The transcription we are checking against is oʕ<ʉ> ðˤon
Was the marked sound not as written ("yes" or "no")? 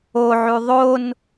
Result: no